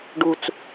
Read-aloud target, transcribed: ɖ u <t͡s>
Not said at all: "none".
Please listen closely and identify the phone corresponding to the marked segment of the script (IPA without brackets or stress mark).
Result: t͡s